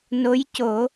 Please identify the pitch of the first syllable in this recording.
rising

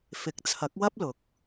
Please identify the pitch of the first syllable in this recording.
rising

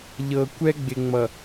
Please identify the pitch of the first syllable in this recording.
low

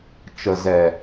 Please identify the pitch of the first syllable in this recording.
low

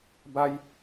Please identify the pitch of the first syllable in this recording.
high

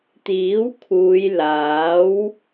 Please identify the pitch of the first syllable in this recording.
rising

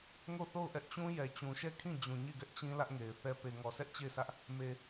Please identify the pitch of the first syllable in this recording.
falling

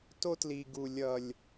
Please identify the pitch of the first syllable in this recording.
high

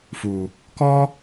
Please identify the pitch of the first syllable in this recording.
low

